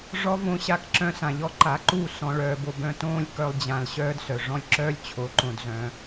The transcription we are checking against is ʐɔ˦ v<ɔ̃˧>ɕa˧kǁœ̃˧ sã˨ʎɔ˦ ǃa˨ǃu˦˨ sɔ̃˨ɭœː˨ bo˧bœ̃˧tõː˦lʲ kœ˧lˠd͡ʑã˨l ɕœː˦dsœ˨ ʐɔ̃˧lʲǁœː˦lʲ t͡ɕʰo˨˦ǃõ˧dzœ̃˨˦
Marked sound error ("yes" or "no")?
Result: yes